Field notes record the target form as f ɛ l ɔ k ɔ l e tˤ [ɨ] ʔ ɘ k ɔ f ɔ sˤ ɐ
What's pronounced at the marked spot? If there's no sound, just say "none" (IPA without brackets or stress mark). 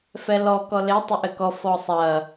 ɨ